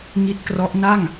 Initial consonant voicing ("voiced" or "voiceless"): voiced